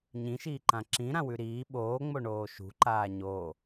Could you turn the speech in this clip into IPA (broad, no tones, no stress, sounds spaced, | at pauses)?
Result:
ɲ ĩ ʃ iː ǃ ã ǁ ĩ ɾ ã w ʉ ɾ iː ɓ oː ŋ͡m o ɳ oː ʃ ṳ ǃ aː ɲ oː